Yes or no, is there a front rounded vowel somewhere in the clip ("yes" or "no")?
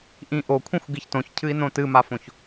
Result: no